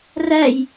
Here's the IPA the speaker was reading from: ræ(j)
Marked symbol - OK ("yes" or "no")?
yes